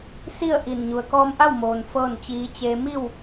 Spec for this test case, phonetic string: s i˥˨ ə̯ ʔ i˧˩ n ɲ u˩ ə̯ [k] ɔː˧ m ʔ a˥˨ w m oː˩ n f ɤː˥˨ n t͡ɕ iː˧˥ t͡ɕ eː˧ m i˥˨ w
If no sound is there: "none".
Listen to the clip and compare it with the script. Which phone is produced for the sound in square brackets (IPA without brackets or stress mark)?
k